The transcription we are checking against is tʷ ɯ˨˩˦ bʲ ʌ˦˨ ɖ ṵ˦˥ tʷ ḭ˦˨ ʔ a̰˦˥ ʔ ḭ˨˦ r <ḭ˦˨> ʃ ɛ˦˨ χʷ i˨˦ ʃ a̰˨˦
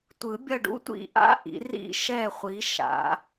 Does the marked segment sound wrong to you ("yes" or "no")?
no